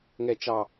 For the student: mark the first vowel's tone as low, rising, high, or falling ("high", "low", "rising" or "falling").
falling